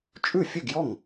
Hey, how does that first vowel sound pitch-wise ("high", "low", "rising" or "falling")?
falling